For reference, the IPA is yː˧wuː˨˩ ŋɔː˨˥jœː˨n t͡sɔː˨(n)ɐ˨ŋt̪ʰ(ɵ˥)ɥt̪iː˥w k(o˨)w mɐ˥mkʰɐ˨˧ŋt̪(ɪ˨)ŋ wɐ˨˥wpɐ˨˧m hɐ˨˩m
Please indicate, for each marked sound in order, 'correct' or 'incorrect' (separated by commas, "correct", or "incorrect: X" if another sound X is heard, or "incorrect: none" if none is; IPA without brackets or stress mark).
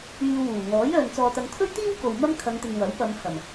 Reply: incorrect: t̪, correct, correct, correct